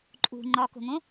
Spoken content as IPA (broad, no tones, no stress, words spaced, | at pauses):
ǃʼṳ ŋ͡ǃɒko̤ŋõ